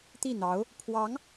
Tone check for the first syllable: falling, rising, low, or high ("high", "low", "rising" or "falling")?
falling